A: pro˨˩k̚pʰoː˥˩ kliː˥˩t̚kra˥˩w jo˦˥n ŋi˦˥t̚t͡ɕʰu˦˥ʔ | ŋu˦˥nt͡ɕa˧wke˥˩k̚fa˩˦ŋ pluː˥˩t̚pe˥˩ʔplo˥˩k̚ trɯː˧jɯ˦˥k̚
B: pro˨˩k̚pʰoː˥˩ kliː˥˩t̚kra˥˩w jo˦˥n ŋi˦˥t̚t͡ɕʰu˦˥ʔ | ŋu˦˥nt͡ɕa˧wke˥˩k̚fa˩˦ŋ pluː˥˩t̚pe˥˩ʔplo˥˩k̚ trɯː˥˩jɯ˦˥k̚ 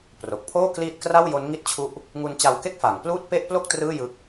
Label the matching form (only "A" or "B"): B